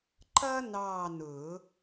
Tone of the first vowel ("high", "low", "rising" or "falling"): high